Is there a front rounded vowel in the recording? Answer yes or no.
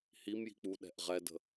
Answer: no